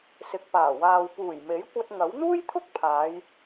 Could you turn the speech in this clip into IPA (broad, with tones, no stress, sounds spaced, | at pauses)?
s ɪ˨ k̚ p aː˨˩ w aː˨ w p uː˨˩ j m e˨˥ j kʷ ɐ˧ t̚ ŋ ɐ˨˥ w n̪ uː˥ j t̪ʰ ʊ˥ k̚ pʰ aː˨˧ j